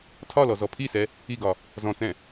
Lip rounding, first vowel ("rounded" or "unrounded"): rounded